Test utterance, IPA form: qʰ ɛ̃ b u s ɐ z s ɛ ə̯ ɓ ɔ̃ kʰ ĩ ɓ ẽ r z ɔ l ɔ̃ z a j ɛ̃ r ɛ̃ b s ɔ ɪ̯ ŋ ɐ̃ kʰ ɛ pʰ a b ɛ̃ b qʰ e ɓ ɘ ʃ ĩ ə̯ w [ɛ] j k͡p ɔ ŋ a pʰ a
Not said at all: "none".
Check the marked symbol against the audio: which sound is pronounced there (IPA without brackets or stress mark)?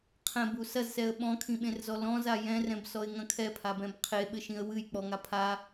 ɨ